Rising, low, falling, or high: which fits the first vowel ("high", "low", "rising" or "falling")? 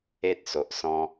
high